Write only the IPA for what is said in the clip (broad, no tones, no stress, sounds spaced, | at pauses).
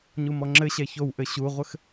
ɲ u m ɔ ŋ͡ǁ ɘ ɕ ɛ ç o w ʔ ɘ ɕ u ʁʷ ɘ x